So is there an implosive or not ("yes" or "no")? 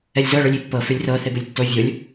no